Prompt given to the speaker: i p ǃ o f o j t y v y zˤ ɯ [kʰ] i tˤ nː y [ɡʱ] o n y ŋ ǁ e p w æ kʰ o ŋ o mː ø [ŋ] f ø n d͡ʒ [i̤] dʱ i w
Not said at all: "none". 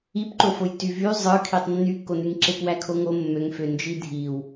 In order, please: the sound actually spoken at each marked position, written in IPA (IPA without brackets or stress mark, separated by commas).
kʰ, kː, ŋ, i